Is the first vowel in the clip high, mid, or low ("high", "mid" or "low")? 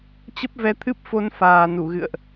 mid